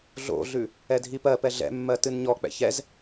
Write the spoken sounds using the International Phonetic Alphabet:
ɮ o̰ ɮ ʉ | ɛ dʱ i p ɜ p ɛ ɮ ɛ̰ mː ɜ t ɨ n ɲ ɔ k͡p ɛ̰ ç ɛ z

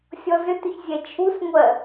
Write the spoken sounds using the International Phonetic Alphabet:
sʲ ɔ z ʏ t ʏ ç zʲ ɛ t͡ʃʰ u s ŋʷ ɜ

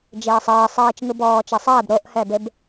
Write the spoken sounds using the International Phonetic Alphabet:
d͡ʒ eː sˤ eː sˤ iː t͡ʃ ŋ ɯ b ɔː t͡ʃ ɛ sˤ ɛː b ɾ o ʔ h ɛ b e b

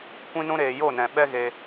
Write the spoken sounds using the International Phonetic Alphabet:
kʷ ĩ˦ n ũ˦ ɾ eː˧ j o˦˨ n ɛ̃˨ ɓ ɛ˦ ɣ e˧

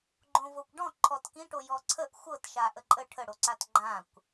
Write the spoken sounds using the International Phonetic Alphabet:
ɡ͡ǃ õ v o kʷ ɖ ɔ̃ ǃʰ ɔ t k ĩ ʈ o j ɔ ǀʰ ə ʔ xʷ ɤ t ʃ a ʔ ə ǃʼ ə ʈʰ ə ɽ o ǀ a t ɡ͡ǃ ã kʷ

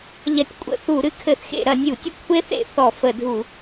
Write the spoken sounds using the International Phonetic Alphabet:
ʎ ɐ˧˩˧ tʲ kʷʼ ə̰˧˩˧ θ u˧˩˧ ɾ ɨ˦˥ kʰ ɘ˧˩˧ θ x ḛ˧˩˧ ɾ ɐ˧˩˧ nʲ u˧˩˧ tʲ ɘ˦˥ kʷʰ e˦˥ θ ḛ˧˩˧ θ ɔ˧˩˧ f ə˧˩˧ dʱ u˧˩˧

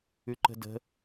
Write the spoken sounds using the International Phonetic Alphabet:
ʉ ǃ ə̤ d ə̤

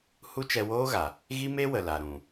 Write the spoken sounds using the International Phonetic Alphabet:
h u˦ t͡ʃ ɛ˧ w oː˦ ɣ a˨ | ɣ i˦ m e˦ w ə˨ l a˨ ɾ ũ˨

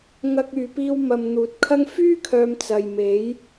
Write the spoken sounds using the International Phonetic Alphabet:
ŋ ɐ˧ k̚ yː˨ p iː˧ w m ɐ˨ m n̪ uː˨ t̚ kʰ ɐ˥ ŋ f yː˥ kʰ œː˨ m t͡s ɐ˨ j m e˨˥ j

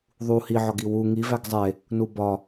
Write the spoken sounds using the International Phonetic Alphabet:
ðˤ u h i ʕ ɒ ɡ i w u ŋ i v æ ɡ zˤ e | n u b ɒ

